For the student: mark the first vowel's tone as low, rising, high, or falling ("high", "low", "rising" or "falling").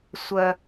high